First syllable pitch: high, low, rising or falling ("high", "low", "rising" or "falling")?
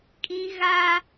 high